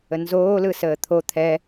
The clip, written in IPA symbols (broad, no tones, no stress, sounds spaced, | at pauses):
ə n z oː l ɯ s əː t̪ʰ o t̪ʰ ɛ